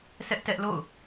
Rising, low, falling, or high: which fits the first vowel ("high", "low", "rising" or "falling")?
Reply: high